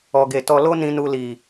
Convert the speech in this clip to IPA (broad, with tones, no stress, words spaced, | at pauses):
ɔ˨ɡe˨ tɔ˧lo˦nĩ˧nu˧ li˨